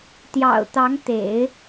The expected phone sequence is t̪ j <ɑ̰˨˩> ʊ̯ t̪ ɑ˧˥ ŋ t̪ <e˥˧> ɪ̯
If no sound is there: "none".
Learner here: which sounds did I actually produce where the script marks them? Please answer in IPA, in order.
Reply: ɑ̰˨˩, ḛ˨˩˦

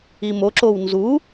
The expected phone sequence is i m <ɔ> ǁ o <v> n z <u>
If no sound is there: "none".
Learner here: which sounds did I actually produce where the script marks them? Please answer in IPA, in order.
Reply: o, w, u

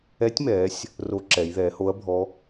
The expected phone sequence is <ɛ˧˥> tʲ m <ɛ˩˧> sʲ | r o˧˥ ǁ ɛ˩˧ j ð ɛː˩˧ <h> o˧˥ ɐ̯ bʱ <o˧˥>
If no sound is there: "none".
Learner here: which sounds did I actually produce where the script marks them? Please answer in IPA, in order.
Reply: ɛ˧˥, ɛː˩˧, h, ɔ˧˥

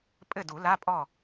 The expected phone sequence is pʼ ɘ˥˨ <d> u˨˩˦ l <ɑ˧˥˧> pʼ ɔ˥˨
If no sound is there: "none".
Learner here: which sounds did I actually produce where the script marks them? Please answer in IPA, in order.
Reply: d, a˧˥˧

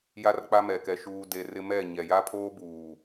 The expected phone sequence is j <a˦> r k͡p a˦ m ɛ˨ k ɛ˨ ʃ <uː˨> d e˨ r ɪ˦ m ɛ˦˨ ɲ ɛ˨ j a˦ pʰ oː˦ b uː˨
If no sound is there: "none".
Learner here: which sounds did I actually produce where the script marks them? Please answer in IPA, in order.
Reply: a˦, uː˨

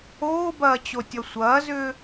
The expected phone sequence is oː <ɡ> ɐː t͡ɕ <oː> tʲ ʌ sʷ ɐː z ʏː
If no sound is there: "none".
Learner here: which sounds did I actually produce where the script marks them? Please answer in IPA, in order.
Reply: b, o

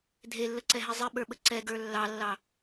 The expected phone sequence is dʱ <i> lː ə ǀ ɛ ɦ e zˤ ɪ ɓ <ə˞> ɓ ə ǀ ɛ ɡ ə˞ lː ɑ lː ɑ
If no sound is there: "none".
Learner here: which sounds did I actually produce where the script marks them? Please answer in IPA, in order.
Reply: e, ə˞

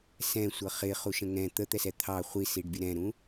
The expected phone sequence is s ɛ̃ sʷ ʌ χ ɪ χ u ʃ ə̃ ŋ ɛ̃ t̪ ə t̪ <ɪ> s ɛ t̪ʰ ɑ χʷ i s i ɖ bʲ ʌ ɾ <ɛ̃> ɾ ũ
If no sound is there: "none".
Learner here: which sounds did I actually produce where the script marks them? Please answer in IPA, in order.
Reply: ɛ, ɛ̃

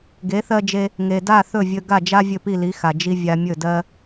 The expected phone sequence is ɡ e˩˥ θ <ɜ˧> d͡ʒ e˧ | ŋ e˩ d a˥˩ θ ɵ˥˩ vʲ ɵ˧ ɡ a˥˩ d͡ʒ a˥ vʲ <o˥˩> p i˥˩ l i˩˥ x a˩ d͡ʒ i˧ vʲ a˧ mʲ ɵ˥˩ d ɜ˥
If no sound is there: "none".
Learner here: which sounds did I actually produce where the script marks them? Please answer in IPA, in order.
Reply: ɜ˧, ɵ˥˩

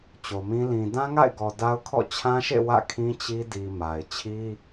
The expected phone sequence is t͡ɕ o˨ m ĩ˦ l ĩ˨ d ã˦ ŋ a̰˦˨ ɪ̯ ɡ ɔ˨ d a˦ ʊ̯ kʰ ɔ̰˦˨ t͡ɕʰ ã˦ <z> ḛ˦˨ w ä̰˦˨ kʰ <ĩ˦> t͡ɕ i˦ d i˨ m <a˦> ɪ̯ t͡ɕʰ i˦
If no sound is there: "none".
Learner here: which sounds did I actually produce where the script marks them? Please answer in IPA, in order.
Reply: ʃ, ĩ˦, a˨

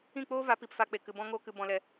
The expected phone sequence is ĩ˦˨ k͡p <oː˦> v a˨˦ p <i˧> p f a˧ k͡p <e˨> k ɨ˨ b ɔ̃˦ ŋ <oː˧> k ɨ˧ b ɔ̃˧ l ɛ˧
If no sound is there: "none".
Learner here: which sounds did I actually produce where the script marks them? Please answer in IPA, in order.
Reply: oː˦, i˨, e˨, oː˦

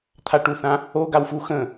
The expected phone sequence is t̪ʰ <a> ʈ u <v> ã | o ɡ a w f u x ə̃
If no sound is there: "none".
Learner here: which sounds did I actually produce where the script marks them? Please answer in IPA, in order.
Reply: a, θ

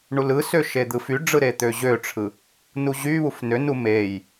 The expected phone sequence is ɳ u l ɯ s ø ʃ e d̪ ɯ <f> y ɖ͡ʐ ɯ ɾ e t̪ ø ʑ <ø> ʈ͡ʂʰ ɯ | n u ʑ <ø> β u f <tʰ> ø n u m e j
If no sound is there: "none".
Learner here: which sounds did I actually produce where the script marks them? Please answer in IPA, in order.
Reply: f, ø, y, n

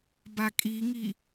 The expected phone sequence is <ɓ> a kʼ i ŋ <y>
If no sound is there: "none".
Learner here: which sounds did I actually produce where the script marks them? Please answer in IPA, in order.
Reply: b, i

